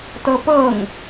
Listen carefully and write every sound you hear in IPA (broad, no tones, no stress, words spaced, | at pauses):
tɤpɤŋ